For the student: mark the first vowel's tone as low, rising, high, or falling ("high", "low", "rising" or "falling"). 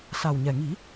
low